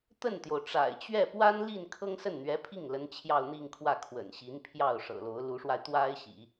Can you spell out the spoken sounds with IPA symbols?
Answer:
t̪ ə˥˩ n t̪ j o˩ ʊ̯ ʈ͡ʂ a̰˨˩ ɪ̯ t͡ɕ ɥ ɛ˥˩ p w a˥ n l i˥˩ n kʰ ɤ˥ ŋ s ə˥˩ n n̪ ɥ ɛ˧˥ pʰ i˥˩ ŋ l ə˧˥ n t͡ɕʰ j ɑ˥˧ ʊ̯ n̪ i˥˧ ŋ kʰ w ä˥˩ kʰ w ə̰˨˩ n ɕ i˧˥ n pʰ j ɑ˥˩ ʊ̯ ʂ ɤ̰˨˩ l o˧˥ ʊ̯ l u˧˥ ʂ w a˧ ɪ̯ t̪ w a˥ ɪ̯ ɕ ḭ˨˩˦

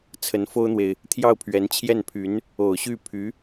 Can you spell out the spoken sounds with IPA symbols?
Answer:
t͡sʰ ə˧˥ n f o˥ ʊ̯ n̪ w e˨ ɪ̯ | t̪ʰ j ɑ˥˩ ʊ̯ pʰ ɥ ɛ˧˥ n t͡ɕʰ j ɛ˥˩ n pʰ y˧˥ n | o˨˩ ʊ̯ ɕ y˥˩ pʰ y˧˥

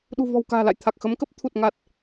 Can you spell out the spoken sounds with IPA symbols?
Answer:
ɗ ṳ˨˩ v ɔ̤˨˩ w k a̤ː˨˩ l a̰˧˨ j t̪ʰ a˨˩ k̚ x ə˨˦ m k ə˦˥ p̚ t̪ʰ u˨˩ t̚ ŋ a˨˩ t̚

